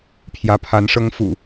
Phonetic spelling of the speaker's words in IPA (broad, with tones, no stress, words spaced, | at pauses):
pʰjä˨˦pʰa˨˦nʂɤ˦ŋ fṵ˨˩